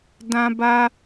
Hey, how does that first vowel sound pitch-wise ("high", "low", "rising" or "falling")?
high